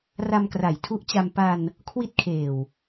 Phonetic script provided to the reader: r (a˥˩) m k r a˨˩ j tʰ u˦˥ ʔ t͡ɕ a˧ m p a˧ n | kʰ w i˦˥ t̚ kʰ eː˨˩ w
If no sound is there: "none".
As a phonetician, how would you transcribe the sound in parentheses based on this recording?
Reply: a˧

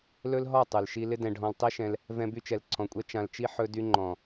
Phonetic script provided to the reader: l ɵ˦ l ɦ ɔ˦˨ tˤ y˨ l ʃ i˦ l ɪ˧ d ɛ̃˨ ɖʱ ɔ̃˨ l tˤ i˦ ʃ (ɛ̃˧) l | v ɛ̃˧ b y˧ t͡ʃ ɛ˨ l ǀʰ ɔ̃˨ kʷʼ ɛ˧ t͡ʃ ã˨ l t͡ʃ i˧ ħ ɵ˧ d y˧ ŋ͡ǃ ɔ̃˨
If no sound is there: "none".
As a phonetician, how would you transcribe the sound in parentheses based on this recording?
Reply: ɛ̃˧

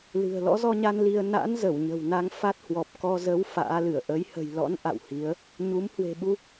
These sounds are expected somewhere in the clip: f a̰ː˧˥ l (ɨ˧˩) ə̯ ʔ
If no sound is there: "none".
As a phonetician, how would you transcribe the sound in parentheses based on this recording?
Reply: ɨ˧˩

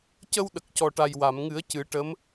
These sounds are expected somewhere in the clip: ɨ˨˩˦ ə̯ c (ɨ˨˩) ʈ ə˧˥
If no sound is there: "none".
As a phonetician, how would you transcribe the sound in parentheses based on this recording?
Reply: ɨ˨˩˦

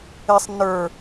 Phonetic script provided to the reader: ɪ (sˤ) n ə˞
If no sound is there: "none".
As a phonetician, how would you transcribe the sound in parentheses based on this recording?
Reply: sˤ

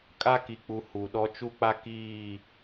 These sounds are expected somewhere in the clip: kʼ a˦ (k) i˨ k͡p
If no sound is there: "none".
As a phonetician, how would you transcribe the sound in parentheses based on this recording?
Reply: k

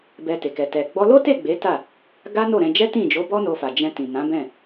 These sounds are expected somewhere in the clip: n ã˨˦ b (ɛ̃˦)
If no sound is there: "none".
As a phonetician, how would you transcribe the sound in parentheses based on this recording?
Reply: ɛ̃˦˨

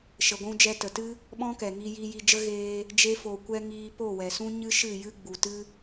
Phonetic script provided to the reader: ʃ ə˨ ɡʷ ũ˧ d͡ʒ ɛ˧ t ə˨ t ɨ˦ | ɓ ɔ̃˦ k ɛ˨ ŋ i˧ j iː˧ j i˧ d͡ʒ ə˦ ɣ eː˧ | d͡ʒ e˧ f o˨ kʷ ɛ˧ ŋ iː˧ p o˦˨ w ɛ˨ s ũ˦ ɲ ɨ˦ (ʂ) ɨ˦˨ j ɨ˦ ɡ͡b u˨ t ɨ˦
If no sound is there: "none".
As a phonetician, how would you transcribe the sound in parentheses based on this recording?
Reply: ʃ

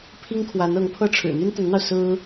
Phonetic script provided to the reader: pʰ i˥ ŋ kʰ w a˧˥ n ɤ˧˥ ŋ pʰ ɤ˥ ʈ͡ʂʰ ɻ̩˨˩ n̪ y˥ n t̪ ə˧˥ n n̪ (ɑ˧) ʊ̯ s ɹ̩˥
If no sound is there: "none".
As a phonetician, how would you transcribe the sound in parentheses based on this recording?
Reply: ɑ˧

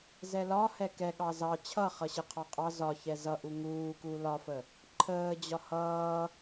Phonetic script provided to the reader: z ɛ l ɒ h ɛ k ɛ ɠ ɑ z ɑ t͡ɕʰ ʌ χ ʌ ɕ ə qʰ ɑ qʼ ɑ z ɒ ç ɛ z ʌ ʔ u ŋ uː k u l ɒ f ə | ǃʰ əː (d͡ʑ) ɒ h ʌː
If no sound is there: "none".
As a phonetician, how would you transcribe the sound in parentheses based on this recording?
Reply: d͡ʑ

